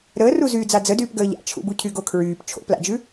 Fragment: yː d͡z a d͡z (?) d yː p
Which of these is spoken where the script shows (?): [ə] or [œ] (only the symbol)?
ə